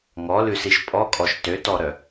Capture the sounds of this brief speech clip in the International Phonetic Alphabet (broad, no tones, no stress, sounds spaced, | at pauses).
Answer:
ŋ ɔ l ʉ s i ʃ pʼ ɔ kʼ ɔ ʃ t ø t ɔ ɾ œ